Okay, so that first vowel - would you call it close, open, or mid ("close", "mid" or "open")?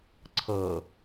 mid